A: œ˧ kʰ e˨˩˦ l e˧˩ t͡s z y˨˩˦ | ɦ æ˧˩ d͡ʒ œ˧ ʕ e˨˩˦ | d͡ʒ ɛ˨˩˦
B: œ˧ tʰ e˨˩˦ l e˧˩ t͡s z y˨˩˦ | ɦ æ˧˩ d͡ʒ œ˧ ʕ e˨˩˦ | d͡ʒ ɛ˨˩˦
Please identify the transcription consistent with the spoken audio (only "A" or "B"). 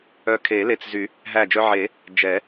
A